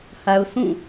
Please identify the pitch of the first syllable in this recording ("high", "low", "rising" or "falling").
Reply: low